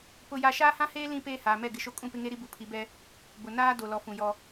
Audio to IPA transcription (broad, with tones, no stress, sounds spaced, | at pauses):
p ʊ˦ j a˦ ʃ aː˦ h ã˦ h eː˦ l ĩ˦ p eː˦ h aː˨ m ɛ˦˨ ɡ ɪ˨ ʃ o˦ kʼ ũ˦˨ p ɪ˦ ŋ e˦ ɾ i˦ b u˨ pʰ i˨˦ b ɛ˦ | b ʊ˨ n aː˦ d o˨ l ɔ˨ f ũ˨ j ɔ˦